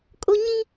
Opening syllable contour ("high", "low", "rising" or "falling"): high